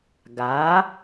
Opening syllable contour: rising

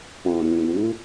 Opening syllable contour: low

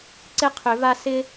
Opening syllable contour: high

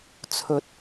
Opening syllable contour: rising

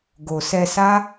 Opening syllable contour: low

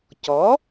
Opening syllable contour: rising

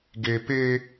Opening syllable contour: low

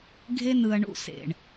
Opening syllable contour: high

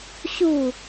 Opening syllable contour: falling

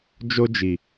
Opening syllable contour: high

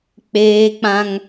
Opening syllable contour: high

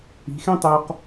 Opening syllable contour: rising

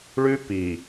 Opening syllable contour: high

